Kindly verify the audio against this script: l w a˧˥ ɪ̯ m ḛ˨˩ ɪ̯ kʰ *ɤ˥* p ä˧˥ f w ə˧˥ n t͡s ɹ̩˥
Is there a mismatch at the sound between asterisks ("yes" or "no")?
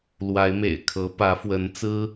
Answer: yes